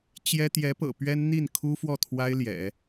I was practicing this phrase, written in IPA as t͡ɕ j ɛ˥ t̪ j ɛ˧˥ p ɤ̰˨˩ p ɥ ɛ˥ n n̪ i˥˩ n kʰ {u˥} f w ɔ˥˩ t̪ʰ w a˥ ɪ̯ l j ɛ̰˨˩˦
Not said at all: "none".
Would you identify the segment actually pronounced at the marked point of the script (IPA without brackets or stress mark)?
u˥